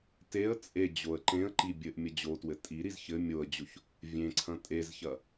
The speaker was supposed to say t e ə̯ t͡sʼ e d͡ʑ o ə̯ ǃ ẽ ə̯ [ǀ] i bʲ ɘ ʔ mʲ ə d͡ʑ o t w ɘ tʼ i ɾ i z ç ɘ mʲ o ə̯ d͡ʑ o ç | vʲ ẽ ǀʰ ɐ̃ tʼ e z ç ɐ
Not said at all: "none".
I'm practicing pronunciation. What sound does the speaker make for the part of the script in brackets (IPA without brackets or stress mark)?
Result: ǃ